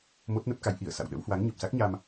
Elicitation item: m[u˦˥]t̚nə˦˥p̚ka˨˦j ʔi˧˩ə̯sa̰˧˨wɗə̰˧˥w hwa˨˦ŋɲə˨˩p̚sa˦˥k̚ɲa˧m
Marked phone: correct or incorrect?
incorrect